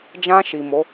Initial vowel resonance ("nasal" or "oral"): nasal